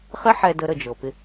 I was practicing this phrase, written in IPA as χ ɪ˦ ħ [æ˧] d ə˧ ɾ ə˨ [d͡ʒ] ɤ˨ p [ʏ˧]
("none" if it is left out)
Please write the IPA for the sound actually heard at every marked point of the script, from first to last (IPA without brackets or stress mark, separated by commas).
ɛ˧, d͡ʒ, ɪ˧